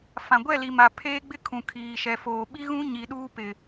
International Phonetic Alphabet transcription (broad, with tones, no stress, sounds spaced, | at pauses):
f ã˨ ɡʷ ɛ˦˨ l i˨ m a˨ pʰ eː˦ ɡ͡b ɪ˦ kʰ ũ˨ kʰ iː˨ ʃ ɛ˨ f oː˨ ɓ i˦ ɣ ũ˦ ɲ i˨ ɗ uː˦ p ɪ˨